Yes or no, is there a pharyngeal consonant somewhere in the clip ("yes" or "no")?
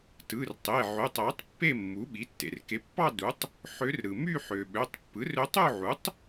yes